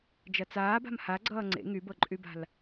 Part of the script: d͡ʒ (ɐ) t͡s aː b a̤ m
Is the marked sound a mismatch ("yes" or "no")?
no